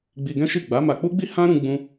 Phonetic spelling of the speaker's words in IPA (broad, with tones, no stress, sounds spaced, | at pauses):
ɡ͡b i˧ ɡ ɛ̃˦ ʃ i˦˨ ɡ͡b a˨˦ m a˧ k͡p u˦ ɡ͡b i˦ h ã˦ ɾ ũ˧ ɡ͡b ũ˧